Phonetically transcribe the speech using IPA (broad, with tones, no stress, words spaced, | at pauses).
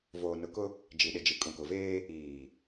voː˨nʊ˨˦kʊ˦ | d͡ʒi˨ɗɪ˨ d͡ʒi˨kʼũ˨kʊ˨veː˦ | iː˨